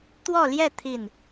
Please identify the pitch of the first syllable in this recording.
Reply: falling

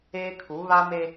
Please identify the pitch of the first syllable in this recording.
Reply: high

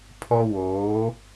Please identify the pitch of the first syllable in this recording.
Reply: high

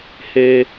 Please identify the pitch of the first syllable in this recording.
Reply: low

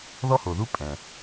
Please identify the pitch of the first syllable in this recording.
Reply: high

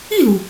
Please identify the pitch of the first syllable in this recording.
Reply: falling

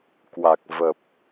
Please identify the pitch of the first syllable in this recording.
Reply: low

